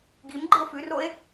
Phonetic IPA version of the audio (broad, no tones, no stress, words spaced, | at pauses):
ɡim ɡ͡ǃɨo̯fʉroe̯